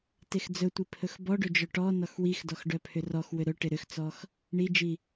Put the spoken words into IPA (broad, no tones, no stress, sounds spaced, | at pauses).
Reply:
t e x d͡z ɵ tʷ i pʰ ɵ x b ɔ ɖ ɵ d͡ʒ œ ʈ ɔ n ɔ x w i x d ɔ x ɖ œ pʰ ʏ r ɔ x w ʏ ɾ ɵ ʈ ɪ ɾ ʏ x t͡s ɔ x | ɳ i d͡ʒ i